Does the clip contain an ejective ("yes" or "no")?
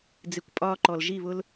yes